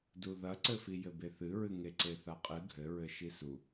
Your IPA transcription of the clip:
d u ð ɐ ǀ ɘ f i j ɘ b e θ ɨ ɹ ɨ ŋ e ǀ e θ a qʼ ɨ ɡʱ ɘ ɹ ɘ ʃ i s u

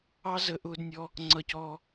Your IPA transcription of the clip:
ɑ˦ z ə˧ ʔ ʊː˧ d nʲ ɔ˧ | ŋ͡ǀ ʌ˧ c ɔː˧

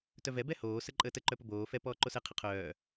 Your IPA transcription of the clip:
t œ v ɛ b ɛ h oː s ə ǃʼ əː t ə ǃ œ p ə b oː f ɛ p ɔː ǃ o s ɛ qʰ ə qʰ œː

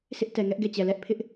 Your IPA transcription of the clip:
s ɪ˦ ʔ t ɛ˨ ŋ ɛ˦ ʔ ɡ ɛ˦˨ t͡ɕ ɛ˨ l ɛ˦ ʔ pʰ ɪ˦ ʔ

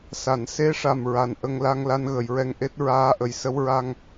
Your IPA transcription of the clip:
s a˨˩˨ n s e˧˥ ʂ a˨˩ m ɹ a˨˩ n ʔ ə˧ ŋ l a˧ ŋ l a˧ n ɣ ə˨˩˨ j ɹ ɛ˧ ŋ ʔ e˦˥ t̚ ɹ aː˧˥ ʔ ə˨˩ j s ə˧˥ w ɹ a˧ ŋ

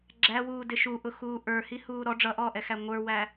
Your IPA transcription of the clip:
ɡ͡ǁ æ w uː d ɪ ʃ u ʔ ʊ x uː ʔ ə˞ h i h uː ɾ ɔ ɖ͡ʐ ʌ ʔ ɔː ʔ ɛ x æ ŋʷ ə˞ w æ

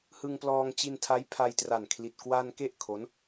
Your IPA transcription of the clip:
h ɯ˧ ŋ p l ɔː˧ ŋ t͡ɕ i˧ n tʰ a˦˥ j pʰ a˧ j t r a˨˩ n kʰ l i˨˩ t̚ k w a˧ n k e˥˩ ʔ kʰ o˦˥ n

